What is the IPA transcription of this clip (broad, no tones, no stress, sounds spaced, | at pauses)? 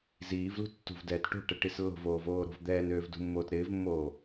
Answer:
z iː v l ṳ tː ṳ v d ɛː t ʈ o̤ ʈ ɛ ʈ i s lː o̤ v oː v oː ɾ o̤ v d̪ ɛː n øː v d ṳ mː oː t ɾ ɪː v mː oː